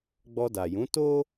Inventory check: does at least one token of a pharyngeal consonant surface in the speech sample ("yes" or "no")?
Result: no